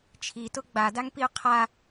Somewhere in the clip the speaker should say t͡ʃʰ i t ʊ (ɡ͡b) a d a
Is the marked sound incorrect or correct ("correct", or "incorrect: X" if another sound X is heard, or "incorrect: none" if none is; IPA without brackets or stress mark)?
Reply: correct